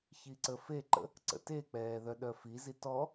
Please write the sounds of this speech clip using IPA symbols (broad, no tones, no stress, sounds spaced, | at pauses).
ç i ǀ ə f e ǃ ə̰ | ǀ ə̰ t e k͡p ɛː ð œ ɗ œ f i z i t ɔ